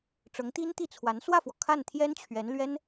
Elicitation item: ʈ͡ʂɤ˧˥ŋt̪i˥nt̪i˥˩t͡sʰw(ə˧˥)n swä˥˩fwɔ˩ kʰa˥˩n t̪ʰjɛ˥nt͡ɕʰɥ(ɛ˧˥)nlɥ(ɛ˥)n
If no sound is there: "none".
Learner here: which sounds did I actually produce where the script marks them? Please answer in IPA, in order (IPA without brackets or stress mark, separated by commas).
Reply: a˧˥, ɛ˧˥, ɛ˥